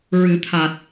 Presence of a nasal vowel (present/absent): absent